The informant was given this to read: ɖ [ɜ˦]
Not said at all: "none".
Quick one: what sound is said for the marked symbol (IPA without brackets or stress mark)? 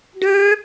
ə˞˦